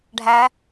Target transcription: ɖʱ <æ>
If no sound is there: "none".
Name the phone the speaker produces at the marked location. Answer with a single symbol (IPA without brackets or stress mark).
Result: æ